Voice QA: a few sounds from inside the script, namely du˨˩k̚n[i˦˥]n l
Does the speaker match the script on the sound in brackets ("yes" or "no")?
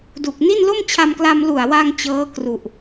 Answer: no